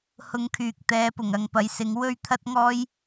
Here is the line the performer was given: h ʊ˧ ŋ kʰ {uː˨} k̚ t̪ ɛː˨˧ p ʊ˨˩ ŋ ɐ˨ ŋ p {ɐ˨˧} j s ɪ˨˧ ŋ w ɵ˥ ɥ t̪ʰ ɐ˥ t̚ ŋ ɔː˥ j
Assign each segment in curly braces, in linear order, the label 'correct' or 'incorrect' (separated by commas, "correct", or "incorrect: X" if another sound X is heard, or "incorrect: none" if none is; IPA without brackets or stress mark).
incorrect: yː˨, correct